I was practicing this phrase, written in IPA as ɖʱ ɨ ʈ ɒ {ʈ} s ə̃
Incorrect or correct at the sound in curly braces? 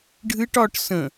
correct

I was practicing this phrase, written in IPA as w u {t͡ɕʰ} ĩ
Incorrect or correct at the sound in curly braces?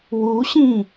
incorrect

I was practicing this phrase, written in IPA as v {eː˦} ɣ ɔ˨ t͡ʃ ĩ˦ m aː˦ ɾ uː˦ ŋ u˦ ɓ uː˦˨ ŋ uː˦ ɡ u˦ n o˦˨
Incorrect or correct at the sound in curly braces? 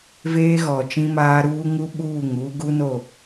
correct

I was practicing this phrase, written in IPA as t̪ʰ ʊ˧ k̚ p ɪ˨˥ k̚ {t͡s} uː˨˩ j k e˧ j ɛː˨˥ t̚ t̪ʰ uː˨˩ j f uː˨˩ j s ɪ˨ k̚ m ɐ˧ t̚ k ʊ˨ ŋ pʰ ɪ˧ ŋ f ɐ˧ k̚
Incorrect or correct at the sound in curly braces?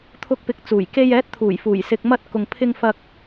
correct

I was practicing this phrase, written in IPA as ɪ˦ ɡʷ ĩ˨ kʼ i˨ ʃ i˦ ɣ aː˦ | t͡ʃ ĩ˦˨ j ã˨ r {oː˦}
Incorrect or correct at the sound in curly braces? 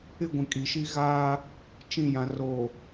incorrect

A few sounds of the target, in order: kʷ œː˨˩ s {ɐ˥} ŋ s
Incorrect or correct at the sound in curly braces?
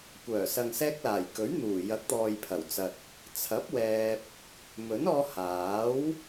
incorrect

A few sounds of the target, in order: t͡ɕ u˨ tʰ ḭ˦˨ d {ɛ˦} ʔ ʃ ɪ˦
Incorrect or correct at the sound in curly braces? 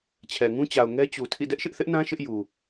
correct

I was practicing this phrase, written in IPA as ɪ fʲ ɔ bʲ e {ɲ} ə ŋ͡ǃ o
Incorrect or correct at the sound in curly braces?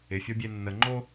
incorrect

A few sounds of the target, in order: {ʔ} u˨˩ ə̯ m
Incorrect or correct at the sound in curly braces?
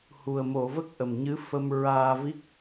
incorrect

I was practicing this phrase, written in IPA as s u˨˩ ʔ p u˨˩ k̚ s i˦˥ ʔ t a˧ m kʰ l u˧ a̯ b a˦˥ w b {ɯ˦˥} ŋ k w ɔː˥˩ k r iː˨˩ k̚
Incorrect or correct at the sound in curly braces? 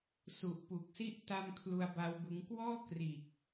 correct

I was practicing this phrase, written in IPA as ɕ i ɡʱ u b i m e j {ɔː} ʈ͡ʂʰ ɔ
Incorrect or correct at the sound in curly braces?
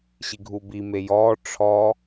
correct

